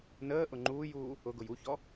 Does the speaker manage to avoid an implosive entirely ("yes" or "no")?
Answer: yes